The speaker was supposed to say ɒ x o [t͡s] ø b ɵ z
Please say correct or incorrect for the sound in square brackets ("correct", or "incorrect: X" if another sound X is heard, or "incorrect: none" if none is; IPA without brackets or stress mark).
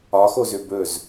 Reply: incorrect: z